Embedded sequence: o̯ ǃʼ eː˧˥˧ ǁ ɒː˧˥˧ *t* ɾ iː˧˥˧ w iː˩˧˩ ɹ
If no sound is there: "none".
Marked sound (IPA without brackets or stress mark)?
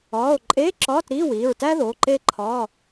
t